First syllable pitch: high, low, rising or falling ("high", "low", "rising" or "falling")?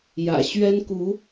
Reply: low